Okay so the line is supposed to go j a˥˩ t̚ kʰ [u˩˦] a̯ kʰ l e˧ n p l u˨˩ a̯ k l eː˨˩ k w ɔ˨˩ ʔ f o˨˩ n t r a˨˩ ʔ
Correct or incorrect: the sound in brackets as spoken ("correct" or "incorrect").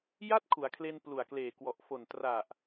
correct